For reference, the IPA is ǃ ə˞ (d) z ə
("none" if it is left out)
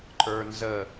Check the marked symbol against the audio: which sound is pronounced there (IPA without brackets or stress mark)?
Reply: n